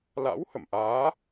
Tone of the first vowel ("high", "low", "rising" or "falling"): rising